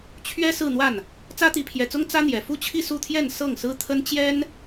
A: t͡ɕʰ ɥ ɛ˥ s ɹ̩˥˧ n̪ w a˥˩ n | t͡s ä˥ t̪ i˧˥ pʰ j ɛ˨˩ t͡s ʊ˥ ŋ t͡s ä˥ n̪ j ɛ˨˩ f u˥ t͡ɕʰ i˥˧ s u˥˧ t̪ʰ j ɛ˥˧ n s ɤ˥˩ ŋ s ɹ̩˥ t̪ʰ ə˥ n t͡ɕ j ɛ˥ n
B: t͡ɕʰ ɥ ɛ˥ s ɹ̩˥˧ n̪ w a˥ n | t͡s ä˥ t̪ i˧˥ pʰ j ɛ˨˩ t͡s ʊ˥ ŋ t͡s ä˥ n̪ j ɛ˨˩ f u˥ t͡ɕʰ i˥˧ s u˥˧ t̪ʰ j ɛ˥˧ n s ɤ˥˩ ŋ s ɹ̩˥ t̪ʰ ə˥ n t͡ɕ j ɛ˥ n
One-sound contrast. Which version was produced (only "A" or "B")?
A